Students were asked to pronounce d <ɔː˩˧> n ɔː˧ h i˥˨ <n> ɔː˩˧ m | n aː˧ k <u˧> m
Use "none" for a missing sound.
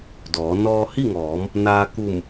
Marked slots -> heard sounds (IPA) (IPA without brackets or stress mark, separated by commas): ɔː˩˧, ŋ, u˧˩